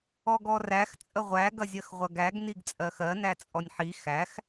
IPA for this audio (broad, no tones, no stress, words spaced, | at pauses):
ɔɡɔræx t͡sʼəʁʷæ ɡɐzʲɜxʁʷɐɡæɡ niɡt͡sʼɜxɜ næt͡sʼɔnʲħi xæx